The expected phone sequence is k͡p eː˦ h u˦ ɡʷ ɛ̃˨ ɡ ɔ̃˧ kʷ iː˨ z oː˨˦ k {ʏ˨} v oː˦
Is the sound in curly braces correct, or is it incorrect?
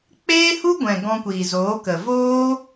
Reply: incorrect